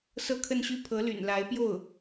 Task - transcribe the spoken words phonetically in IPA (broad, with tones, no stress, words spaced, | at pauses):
sɤ˥˧kʰə˥˧nɕy˥˩ pʰɤ˧˥ly̰˨˩nla˧˥ɪ̯pjo˥˩ʊ̯